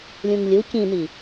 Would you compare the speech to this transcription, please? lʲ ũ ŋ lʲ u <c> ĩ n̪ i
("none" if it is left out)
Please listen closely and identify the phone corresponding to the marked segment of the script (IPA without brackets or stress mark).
c